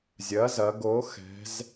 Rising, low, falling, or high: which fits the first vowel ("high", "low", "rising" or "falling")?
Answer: rising